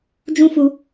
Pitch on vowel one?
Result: high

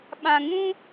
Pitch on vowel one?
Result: low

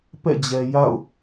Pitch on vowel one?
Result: falling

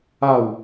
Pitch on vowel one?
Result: falling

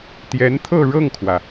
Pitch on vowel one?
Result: rising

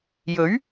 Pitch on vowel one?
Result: rising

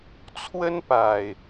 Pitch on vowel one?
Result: high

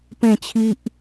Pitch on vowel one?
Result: falling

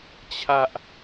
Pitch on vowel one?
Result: high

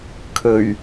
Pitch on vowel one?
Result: low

